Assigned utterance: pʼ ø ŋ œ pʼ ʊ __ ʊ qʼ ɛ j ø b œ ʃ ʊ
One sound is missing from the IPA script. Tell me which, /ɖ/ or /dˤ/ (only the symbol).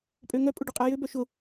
ɖ